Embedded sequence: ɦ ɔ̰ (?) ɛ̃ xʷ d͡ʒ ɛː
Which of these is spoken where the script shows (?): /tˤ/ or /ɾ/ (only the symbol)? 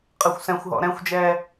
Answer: ɾ